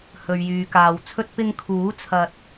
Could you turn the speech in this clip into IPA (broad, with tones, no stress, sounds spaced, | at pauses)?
h ɵ˨ ɥ j yː˨ k aː˨ w t͡sʰ ɵ˥ t̚ p ɪ˧ ŋ kʰ uː˨˥ t͡sʰ ɐ˧ t̚